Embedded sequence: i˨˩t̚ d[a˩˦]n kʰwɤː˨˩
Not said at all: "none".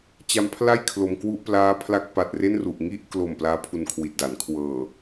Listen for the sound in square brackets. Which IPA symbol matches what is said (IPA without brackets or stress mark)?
a˩˦